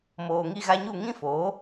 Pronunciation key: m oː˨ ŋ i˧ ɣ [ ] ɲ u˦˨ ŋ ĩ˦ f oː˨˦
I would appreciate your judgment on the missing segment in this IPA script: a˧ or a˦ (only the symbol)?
a˧